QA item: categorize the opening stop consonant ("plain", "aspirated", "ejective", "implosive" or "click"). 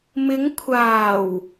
aspirated